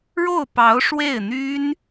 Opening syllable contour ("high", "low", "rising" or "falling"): falling